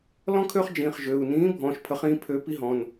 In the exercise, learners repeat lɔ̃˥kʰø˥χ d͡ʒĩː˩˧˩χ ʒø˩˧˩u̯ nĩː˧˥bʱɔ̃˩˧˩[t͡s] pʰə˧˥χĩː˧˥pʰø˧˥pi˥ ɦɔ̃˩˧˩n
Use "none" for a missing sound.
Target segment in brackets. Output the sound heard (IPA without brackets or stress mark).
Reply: ʃ